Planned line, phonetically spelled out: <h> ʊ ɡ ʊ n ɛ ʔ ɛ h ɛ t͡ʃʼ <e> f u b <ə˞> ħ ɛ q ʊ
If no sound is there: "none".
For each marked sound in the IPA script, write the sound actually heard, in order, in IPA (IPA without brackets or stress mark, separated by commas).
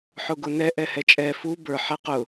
ħ, ɛ, ə˞